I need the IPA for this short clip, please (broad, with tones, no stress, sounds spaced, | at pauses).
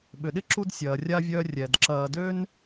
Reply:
ɓ ʏ˩ ɗ ɪ˥ ǁ u˦ d sʲ ɐː˩ rʲ a˥ vʲ œː˦ rʲ ɛ˩ d ǁ ɐː˨ d ø˥ n